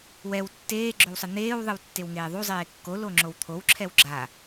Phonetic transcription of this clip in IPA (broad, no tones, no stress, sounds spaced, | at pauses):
w ɛ w tː eː ɡ͡ǁ o w sˤ ɯ n̪ eː w ðˤ ɯ w tː e w ŋ eː ðˤ u zˤ eː kː o l o ŋ͡ǁ o w t̪ʰ o w ǁʰ ɛ w ɡ͡ǁ a